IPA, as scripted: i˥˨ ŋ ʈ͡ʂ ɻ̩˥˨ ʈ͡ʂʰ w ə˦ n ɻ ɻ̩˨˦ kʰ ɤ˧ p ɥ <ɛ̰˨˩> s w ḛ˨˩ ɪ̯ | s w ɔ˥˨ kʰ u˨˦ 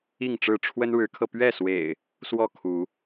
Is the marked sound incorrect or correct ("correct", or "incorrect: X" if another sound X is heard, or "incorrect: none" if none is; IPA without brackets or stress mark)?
incorrect: ɛ˥˨